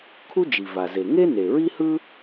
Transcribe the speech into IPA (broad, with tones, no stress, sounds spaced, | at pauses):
kʰ u˥ d͡ʒ i˩ v a˩ z e˩ ŋ e˥ n e˩ ɹ i˥ h ɯ˥